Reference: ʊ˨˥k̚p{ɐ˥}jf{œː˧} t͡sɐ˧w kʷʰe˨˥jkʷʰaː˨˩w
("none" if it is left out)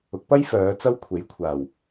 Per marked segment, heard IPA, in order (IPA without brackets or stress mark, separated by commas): ɐ˥, œː˨˧